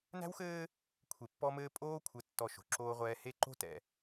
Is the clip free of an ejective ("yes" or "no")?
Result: no